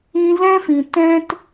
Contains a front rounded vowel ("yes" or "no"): no